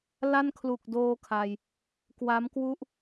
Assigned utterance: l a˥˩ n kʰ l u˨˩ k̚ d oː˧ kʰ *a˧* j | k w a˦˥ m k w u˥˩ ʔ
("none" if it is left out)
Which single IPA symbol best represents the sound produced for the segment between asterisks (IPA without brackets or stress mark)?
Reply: a˧